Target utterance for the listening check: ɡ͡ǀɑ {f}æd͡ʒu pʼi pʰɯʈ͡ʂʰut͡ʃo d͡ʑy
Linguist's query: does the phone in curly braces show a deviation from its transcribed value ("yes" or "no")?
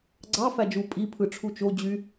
no